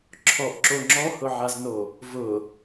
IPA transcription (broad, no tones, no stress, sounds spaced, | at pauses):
ǁʰ ɔ ʔ ǁ o ŋ͡ǁ ɔ h ʊ ʕ a z n o | v ʊ